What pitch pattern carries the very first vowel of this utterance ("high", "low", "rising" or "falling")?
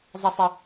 high